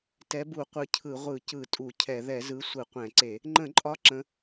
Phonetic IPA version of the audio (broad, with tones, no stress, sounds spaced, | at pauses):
t ɛ˨˥ b u˧˩˧ qʷ ɯ˨˥ cʰ ɯ˧˩˧ ʁʷ ɯ˧˩˧ c ɯ˧˩˧ tʼ u˧˩˧ cʰ ɛ˧˩˧ ð ɛ˧˩˧ z ɯ˨˥ sʷ ɯ˧˩˧ qʷ ɛ̃˧˩˧ ǀ e˧˩˧ | ŋ͡ǃ ə̃˧˩˧ ǃʼ ɒ˨˥ ǁ ə̃˨˥